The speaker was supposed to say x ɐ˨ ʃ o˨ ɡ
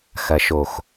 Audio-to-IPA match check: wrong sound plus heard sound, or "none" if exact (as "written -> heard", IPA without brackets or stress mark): ɡ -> x